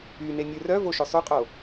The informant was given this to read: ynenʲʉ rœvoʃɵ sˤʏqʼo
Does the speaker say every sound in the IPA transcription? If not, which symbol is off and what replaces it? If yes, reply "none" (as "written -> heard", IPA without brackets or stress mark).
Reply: ʏ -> y